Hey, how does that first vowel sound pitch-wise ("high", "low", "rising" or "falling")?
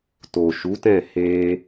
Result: low